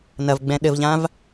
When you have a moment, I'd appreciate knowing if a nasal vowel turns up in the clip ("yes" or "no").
yes